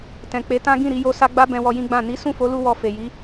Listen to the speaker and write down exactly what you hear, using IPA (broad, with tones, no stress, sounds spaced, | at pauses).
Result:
t ɛ̃˨ k͡p e˨˦ t ã˦ ɡ ĩ˦˨ ɾ i˧ j o˧ s a˧ ɡ͡b a˦ b ɛ̃˧ w ɔ˧ j ĩ˦ ɡ͡b ã˦˨ n i˨˦ s ũ˦˨ f o˨˦ l u˧ w ɔ˧ f e˨ j i˨˦